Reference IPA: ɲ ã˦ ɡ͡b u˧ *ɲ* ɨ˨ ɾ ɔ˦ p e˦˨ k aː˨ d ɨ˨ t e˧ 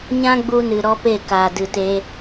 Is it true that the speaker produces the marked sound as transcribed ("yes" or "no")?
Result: no